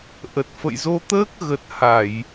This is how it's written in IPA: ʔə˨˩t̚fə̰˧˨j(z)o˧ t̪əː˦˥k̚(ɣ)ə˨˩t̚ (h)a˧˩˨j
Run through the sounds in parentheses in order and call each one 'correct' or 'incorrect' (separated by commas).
correct, correct, correct